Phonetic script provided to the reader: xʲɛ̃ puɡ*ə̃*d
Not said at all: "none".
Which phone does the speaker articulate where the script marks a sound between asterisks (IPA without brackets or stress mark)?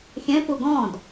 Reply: ɔ̃